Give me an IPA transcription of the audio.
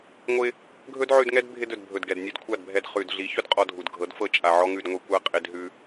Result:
ŋʷ ɪ˧ | ɡʱ ɵ˦ d ʕ ʉ˧ d ŋ ɛ˦ d bʱ ɪ˧ d ɵ˨ d bʱ ɵ˨ d ɡ ɛ˨ d nʲ ɛ˧ d kʷʰ a˦˨ d bʱ ɛ˧ d χ ʉ˨ d ɮ i˨˦ ç ɵ˦ d qʼ ɔ˧ dʱ u˨ d ɡʱ ɤ˨˦ d f ɤ˦ t͡ʃʼ a˨ ʕ ɔ˦ ŋ ʉ˧ d ŋʷ i˧ kʷ a˦ qʼ ɪ˦ d ɦ ʉ˦

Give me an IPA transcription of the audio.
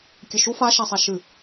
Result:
kʲ ɘ ʃ u f a ʃ a sˤ a ʃ ɨ

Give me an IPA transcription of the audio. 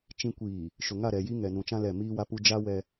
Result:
t͡ʃ ĩ˨ kʷ iː˨ | ʃ ʊ˨ ŋ a˦˨ ɾ ɛ˨ j i˦ ŋ ɛ˨ n ũ˨ t͡ʃ ã˦ l ɛ˦˨ m iː˦ w a˦ p u˦ d͡ʒ a˦ w ɛ˦

